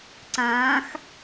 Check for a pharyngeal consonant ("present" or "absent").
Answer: absent